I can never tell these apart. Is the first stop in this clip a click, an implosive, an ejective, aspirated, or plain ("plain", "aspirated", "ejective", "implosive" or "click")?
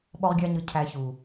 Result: implosive